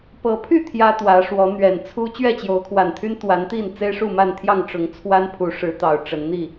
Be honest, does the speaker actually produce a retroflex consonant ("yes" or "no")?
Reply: yes